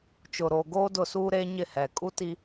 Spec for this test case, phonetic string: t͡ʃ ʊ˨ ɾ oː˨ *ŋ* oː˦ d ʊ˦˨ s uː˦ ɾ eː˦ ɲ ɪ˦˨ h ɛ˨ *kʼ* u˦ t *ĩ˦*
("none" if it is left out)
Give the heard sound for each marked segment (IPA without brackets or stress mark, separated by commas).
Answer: ɡ, kʼ, i˦